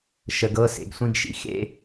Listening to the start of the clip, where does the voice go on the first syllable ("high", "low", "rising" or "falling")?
low